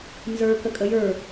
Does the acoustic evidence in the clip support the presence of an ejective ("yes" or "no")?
yes